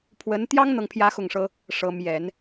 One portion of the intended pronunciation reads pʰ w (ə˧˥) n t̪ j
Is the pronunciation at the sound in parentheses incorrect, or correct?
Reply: correct